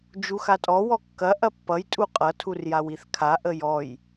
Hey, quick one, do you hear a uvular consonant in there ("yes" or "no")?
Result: yes